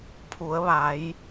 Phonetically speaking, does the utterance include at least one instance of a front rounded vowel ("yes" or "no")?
no